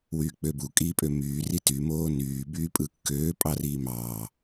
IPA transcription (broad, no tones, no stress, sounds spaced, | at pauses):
w yː k͡p ø b u kʼ iː pʼ ø m yː r i t y m oː n yː b yː pʼ ɯ kː øː pʼ ɑ r iː m ɑː